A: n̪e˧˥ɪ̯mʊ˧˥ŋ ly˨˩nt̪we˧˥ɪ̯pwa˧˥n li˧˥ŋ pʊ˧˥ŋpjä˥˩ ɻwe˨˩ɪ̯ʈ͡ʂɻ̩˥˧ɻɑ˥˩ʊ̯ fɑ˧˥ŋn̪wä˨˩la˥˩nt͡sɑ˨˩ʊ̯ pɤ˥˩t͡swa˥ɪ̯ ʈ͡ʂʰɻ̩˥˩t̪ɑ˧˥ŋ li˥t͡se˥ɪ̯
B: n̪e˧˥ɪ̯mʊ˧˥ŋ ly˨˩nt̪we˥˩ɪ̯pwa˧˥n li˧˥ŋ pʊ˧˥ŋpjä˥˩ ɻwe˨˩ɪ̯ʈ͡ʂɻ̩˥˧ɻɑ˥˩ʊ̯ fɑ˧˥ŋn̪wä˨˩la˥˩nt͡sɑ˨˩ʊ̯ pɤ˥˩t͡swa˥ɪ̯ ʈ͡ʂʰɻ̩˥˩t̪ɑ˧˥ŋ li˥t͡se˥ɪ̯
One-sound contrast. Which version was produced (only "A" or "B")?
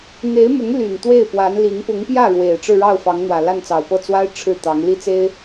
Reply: B